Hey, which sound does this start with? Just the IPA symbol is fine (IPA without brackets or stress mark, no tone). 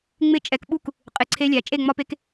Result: ŋ͡m